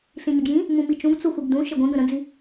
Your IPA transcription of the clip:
ɬ ĩ ɲ ə ɡ j ĩ | m ũ m i t͡ʃ ũ ɡ t͡s u xʷ i ɡ d ũ ʃ ɘ ɡʷ ĩ ɡ ə̃ ɾ ə̃ d͡z i

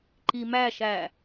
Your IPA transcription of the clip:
ǃ i m æ ʃ æ

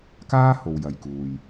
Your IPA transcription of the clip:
k aː˥ h o˨ w j ɐ˨ j k uː˨ j

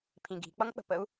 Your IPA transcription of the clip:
pʰ ĩ ɡ i̤ k͡p ʌ ŋ k͡p ə̤ p ə u̯

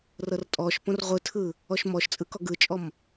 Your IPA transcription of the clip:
r ɤ r tʼ ɔ ʃ p õ r ʁʷ ɯ tʰ ɯ | ɔ ʃ m ɔ ʃ t͡sʼ ɯ k ɔ ɡ ɯ t͡ʃʼ ɔ m

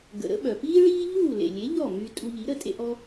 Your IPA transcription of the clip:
ɡ ə̰˩ ɾ ə̰˥ ɓ œ˩ p iː˥ ɭ iː˥ ʎ uː˥˩ l ḛ˩ lʲ e˩˥ ʎ ɔ˥˩ m y˧ tʼ u˧ ʎ i˩˥ ɾ ə˥˩ tʼ ḛ˧ ʔ ɔ˧

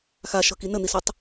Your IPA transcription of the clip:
x a ʃ ɤ k i n ə n̪ i s ɵ tˤ

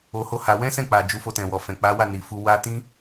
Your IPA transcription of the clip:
o˧ h o˦ h a˧ w ɛ̃˦ s ɛ̃˦˨ k͡p a˨ d͡ʒ u˨˦ f o˧ t ɛ̃˨ w ɔ˨ f ɛ̃˨ k͡p a˨˦ w a˦˨ n i˨ f u˧ w a˦ t ĩ˦

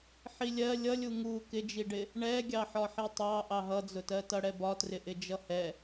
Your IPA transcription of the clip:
ħ i lʲ ɜ lʲ ʌ lʲ u ŋ u k ɪ d͡ʒ i ɖ ɪ | ɳ ɛ ɡʲ ɑ ħ ɒ ħ i tˤ ɑ ʔ ɑ ɦ ʌ d͡z ʊ t ɜ t ʌ ɽ ɛ b ɒ t r ɪ ʔ ɪ d͡ʒ ʌ h ɛ

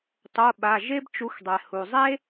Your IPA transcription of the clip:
tˤ o˩˧˩ ɓ a˩˧˩ ʒ e˥ b t͡ʃ u˨˥ x dˤ ɛ˩ h u˩ zˤ e˥

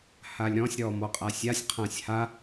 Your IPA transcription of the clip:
h a lʲ ɾ ɔ̃ sʲ ɾ ɔ m ɔ qʼ a sʲ a sʲ qʰ ã sʲ h a

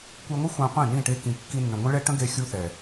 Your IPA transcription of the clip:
kʷ e˧ ŋʷ ə˦ xʷ ã˧ qʷ ẽ˦˨ n ĩ˦˨ ʈ e˧ k ĩ˨ kː i˧ nː ə̃˨ ŋʷ ə̃˦ ɭ ɛ˦ ʈ ə̃˦ ɡ e˧ xʲ u˧ θ ɛ˨

